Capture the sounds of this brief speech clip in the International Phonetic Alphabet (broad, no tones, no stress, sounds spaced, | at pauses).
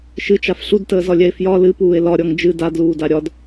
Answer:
ʃ ɨ t͡ʃ a f ɬ u d t əː z ɒ lʲ ɛ e̯ f j ɒ l ɨ p uː e̯ l ɒ ɾʲ ɔ ŋ d͡ʒ ɨ d a d l uː d a ɾʲ ɒ d